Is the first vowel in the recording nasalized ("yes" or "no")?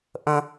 yes